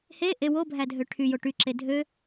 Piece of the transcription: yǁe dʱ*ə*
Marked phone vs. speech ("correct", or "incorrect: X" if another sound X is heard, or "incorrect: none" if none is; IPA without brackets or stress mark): incorrect: ø